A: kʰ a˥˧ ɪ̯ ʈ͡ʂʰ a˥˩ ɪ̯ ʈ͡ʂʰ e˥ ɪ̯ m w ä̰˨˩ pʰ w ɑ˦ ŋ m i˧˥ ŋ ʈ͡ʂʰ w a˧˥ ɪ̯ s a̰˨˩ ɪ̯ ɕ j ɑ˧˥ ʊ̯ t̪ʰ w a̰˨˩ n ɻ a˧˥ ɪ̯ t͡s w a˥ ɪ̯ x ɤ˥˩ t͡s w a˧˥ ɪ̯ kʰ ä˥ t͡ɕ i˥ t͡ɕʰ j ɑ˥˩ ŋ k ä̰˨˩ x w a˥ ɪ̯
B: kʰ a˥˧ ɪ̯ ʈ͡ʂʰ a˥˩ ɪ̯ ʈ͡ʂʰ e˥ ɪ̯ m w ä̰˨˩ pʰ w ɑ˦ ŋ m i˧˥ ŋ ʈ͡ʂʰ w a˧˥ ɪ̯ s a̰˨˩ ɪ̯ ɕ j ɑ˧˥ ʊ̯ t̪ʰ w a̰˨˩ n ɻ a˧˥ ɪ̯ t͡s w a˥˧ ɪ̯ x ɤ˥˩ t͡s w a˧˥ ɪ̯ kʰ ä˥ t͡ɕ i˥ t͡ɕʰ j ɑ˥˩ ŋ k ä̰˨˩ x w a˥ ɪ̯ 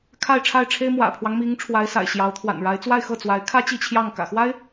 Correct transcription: B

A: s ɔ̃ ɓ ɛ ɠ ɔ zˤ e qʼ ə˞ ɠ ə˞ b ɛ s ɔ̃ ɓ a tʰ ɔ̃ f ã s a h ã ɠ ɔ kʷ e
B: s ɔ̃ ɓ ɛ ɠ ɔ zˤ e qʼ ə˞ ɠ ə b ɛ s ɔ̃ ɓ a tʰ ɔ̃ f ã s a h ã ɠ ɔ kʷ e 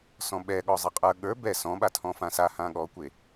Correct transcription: A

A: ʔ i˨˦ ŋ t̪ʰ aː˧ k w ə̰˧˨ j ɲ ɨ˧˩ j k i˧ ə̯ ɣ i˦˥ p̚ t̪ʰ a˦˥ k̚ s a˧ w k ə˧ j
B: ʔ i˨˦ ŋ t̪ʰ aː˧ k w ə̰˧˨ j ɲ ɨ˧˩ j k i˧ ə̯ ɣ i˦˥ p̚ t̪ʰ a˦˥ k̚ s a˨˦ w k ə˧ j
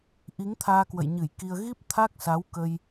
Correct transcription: B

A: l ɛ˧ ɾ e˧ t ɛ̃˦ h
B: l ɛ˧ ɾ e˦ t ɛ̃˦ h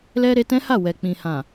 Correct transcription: A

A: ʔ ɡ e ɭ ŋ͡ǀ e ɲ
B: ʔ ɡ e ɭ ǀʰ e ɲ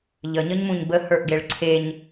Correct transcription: B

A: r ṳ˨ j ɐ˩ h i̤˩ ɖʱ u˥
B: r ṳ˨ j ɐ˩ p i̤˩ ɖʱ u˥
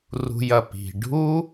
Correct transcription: B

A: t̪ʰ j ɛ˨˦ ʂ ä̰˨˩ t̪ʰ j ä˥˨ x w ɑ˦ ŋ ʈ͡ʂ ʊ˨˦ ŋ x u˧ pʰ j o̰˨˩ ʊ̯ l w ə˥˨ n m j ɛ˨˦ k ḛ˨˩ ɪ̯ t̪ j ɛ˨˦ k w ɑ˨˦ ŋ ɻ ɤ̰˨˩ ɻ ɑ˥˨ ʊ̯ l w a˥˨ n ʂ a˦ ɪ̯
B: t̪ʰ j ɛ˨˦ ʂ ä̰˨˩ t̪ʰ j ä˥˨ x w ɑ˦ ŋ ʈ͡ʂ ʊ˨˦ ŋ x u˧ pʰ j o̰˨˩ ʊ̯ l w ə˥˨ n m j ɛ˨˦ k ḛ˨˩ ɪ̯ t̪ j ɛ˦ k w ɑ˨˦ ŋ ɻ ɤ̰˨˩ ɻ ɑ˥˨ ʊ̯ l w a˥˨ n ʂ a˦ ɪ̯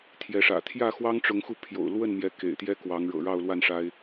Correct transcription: B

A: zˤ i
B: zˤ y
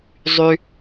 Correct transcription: B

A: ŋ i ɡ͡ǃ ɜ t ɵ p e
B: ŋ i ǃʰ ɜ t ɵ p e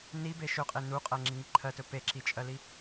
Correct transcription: B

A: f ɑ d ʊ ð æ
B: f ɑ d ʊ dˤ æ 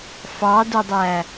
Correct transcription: B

